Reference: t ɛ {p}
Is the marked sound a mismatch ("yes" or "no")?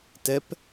no